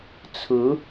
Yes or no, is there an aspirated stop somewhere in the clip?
yes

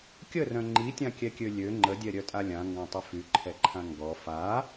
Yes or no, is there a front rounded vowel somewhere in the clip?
yes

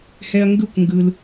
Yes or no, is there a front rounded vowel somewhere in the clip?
no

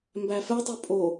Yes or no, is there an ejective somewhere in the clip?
yes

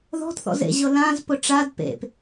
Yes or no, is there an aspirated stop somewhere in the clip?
no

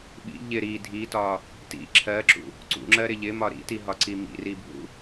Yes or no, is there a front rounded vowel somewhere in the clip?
no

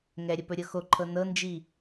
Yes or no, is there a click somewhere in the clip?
yes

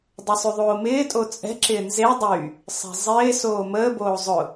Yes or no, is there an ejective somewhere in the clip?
yes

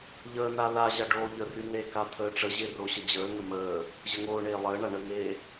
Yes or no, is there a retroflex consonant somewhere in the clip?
yes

